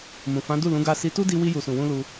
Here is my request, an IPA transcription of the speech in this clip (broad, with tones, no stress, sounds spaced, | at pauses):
m ũ˨ f ã˨˦ d u˦˨ l ũ˨˦ ɡ a˧ s i˧ t u˦ d i˧ w i˧ j u˨ s ũ˨ w ũ˧ l u˧